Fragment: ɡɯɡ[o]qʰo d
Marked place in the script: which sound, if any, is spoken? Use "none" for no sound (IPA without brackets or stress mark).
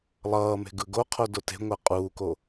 o